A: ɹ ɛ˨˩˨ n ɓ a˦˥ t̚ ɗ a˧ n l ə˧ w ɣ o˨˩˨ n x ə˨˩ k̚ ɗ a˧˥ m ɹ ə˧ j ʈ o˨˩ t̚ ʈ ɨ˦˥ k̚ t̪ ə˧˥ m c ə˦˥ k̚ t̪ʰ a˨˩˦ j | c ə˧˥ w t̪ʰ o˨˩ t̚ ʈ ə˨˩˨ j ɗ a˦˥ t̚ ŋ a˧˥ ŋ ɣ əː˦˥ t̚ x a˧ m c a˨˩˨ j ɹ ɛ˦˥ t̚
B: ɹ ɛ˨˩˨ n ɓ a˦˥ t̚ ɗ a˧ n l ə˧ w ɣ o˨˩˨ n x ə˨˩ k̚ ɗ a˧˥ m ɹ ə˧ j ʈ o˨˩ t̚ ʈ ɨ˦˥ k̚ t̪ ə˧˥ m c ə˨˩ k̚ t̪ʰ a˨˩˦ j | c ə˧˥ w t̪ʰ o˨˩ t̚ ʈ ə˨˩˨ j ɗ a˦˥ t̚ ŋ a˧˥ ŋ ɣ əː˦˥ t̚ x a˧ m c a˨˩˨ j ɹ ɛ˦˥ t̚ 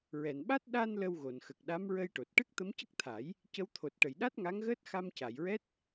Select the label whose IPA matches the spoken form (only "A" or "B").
A